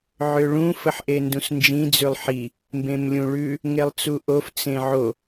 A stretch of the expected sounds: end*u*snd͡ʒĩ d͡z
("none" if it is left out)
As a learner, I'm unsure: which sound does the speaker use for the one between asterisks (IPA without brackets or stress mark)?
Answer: ũ